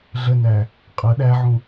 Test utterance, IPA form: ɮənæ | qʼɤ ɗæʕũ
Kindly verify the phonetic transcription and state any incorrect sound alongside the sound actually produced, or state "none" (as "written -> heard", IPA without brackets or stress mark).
none